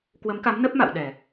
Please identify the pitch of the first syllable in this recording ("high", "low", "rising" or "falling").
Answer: rising